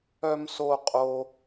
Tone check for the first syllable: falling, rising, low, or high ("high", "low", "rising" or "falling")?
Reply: low